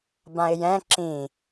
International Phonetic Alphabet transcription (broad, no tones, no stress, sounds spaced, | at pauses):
b ã ɪ̯ j ɛ̃ ǁ ĩ